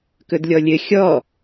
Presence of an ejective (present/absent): absent